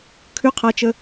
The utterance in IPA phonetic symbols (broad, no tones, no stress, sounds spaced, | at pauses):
kʰ ʉ qʰ a t͡ʃ ə